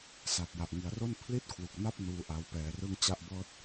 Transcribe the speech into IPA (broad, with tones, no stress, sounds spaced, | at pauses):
s a˨˩ t̚ j a˨˩ ʔ ŋ i˩˦ a̯ r o˥˩ n pʰ l i˥˩ t̚ kʰ w u˨˩ k̚ n a˥˩ p̚ n uː˦˥ ʔ a˧ w p ɛː˧ r ɯ˥˩ ŋ t͡ɕ a˥˩ ʔ b ɤː˥˩ t̚